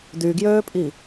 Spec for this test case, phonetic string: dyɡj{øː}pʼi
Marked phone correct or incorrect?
correct